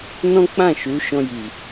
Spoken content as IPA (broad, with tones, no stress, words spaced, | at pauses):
nɔ̃˦k͡pã˦˨ ʃu˨˦ ʃɔ̃˧ji˨